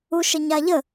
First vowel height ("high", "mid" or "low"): high